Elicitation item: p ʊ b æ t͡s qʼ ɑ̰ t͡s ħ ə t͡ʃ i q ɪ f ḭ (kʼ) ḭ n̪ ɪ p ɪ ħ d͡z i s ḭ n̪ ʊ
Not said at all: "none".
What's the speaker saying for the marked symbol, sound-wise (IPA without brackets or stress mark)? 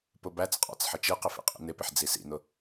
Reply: qʼ